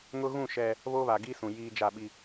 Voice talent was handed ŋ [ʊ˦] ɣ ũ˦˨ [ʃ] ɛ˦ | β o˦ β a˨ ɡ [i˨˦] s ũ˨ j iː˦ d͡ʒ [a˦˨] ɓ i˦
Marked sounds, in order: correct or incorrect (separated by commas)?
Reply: correct, correct, incorrect, correct